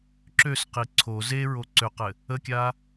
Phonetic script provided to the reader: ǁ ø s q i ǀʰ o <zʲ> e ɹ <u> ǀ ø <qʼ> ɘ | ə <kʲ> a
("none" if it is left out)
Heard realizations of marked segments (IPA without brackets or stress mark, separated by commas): z, o, q, kʲ